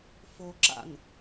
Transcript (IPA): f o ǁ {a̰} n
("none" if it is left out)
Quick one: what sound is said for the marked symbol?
a̰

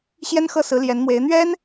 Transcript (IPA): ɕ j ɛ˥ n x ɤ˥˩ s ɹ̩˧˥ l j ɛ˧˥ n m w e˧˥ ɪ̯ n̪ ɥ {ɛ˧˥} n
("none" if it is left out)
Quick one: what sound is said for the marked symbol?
ɛ˥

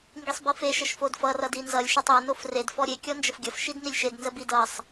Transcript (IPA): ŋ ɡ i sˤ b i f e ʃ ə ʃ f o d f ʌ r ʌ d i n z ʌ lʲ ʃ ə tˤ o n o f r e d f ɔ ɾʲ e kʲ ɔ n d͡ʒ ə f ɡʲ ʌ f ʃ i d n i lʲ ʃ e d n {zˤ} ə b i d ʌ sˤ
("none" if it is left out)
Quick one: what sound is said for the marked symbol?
z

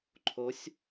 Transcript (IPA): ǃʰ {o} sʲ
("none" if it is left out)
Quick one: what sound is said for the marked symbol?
o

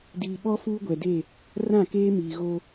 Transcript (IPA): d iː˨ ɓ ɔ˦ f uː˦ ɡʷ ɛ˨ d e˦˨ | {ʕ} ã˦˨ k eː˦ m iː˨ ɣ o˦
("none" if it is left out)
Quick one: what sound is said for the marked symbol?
r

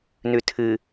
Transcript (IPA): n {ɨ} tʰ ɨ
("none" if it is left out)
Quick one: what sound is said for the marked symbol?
ʉ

